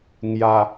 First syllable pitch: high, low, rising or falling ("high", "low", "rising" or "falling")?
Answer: low